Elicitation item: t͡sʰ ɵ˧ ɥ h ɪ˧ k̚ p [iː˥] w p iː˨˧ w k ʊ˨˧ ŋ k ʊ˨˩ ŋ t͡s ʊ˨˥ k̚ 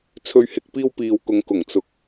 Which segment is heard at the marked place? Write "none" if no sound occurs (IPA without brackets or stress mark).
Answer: iː˥